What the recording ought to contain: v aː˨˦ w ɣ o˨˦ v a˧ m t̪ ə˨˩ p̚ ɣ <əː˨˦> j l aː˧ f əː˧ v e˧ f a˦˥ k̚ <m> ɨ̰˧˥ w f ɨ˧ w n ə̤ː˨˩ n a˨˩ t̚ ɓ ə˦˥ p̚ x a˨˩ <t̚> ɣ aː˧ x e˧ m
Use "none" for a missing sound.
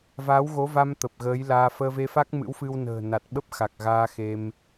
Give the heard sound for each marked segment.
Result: əː˨˦, m, k̚

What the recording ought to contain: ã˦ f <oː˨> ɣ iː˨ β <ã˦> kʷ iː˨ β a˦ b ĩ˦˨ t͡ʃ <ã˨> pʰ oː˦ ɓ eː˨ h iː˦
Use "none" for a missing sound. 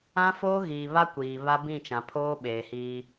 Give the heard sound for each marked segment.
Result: oː˦, a˦, ã˨

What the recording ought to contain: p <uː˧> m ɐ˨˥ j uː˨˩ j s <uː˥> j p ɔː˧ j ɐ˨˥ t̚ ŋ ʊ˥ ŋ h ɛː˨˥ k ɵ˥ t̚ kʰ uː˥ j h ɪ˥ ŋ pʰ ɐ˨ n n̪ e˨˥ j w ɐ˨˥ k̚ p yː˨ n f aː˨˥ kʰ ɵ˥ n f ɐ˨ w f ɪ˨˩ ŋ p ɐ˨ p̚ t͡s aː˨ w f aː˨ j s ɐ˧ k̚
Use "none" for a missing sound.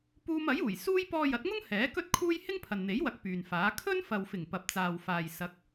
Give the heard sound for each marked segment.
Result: uː˧, uː˥

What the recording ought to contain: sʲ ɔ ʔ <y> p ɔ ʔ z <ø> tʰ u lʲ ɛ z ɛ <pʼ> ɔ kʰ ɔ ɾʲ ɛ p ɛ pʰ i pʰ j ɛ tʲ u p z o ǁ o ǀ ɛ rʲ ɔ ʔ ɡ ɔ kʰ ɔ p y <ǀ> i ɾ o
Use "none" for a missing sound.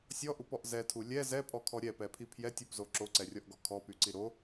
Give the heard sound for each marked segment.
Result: u, ɛ, pʼ, ǀ

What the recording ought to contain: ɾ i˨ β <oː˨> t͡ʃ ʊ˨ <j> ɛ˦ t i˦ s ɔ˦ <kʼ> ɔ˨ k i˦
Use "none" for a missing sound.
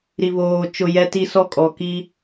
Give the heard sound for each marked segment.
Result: oː˨, j, kʼ

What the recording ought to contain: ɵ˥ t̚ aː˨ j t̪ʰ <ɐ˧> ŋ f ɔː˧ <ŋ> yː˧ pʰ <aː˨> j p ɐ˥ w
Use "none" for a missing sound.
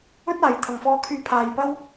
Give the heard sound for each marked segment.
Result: ɐ˨, kʰ, aː˧

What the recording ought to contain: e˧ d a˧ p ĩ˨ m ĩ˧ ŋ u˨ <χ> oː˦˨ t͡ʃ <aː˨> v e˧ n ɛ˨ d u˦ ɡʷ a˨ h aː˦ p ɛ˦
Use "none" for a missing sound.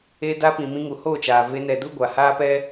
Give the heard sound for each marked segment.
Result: h, aː˨

